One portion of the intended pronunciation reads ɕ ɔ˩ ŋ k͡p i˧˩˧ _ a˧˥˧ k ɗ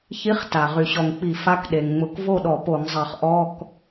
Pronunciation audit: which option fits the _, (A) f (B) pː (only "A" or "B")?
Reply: A